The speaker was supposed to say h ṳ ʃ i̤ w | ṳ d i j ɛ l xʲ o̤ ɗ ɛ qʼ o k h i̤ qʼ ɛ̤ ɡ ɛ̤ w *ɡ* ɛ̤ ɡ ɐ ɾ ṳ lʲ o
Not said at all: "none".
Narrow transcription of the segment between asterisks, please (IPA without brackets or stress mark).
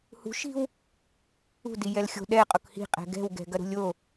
ɡ